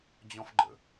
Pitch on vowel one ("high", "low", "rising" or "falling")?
high